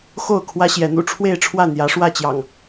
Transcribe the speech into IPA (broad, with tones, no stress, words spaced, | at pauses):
xo˥˨ʊ̯kʰwä˦ɕjɛ˨˦n̪ṵ˨˩ ʈ͡ʂʰwe˥˨ɪ̯ʈ͡ʂʰwä˥˨n̪jä˨˦ ʂwä˥˨t͡ɕjɑ̰˨˩ŋ